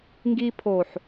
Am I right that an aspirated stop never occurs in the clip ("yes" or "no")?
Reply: no